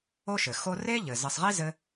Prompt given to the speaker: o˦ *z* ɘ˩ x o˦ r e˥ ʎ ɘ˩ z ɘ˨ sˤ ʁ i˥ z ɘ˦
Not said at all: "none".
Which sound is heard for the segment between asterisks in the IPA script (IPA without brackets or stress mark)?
ʃ